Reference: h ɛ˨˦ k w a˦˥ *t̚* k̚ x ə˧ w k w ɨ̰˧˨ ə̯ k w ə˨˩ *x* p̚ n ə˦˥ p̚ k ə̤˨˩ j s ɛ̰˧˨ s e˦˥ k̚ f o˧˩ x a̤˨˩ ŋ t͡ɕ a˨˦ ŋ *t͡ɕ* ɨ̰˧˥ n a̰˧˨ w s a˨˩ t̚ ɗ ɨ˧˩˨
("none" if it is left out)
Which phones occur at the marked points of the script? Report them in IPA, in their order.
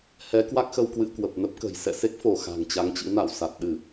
none, none, t͡ɕ

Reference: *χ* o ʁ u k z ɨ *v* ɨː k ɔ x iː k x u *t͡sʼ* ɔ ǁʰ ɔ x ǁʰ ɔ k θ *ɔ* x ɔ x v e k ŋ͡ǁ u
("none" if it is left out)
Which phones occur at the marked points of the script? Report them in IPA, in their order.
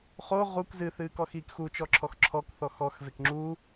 χ, θ, t͡ʃ, ɔ

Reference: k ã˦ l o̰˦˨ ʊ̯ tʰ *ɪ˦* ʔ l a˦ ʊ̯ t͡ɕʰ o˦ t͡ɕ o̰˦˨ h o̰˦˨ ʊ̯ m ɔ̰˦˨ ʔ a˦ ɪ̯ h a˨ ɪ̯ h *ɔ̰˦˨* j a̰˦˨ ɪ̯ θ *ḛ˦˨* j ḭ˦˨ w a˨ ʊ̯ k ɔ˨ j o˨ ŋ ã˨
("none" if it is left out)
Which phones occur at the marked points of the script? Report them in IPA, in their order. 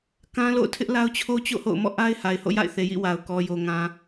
ɪ˦, o̰˦˨, e˨

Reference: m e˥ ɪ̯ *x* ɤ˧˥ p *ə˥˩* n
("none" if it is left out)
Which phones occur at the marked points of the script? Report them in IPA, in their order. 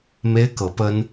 k, ə˥

